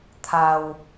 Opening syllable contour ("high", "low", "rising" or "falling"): low